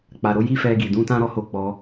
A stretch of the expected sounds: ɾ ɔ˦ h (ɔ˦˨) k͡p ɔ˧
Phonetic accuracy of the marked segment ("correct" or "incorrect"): incorrect